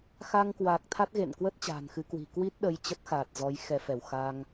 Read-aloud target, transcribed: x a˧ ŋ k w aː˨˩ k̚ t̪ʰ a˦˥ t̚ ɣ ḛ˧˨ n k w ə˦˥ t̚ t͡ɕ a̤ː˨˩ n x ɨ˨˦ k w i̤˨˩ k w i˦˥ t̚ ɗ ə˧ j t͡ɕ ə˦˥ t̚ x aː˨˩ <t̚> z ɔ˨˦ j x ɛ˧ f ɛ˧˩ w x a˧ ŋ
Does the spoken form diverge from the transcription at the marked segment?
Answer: no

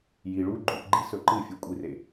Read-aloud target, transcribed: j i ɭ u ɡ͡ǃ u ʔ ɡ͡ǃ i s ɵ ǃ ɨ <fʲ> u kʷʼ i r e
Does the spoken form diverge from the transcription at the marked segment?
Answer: no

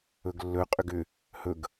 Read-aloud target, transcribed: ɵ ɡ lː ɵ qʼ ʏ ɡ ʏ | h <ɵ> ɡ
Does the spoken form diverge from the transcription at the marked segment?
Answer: no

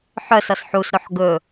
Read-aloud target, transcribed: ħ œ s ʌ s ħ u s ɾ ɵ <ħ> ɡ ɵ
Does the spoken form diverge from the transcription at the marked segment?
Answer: no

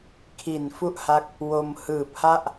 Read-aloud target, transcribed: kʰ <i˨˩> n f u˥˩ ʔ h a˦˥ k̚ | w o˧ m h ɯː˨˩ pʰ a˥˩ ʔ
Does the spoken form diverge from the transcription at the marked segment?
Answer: no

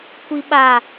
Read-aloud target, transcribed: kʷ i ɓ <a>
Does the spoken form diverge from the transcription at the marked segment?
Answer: no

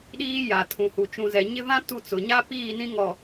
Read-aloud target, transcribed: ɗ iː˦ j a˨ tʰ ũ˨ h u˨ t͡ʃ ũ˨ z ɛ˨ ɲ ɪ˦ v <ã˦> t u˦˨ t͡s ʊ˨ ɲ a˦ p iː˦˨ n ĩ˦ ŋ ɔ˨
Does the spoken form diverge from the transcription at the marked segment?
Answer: no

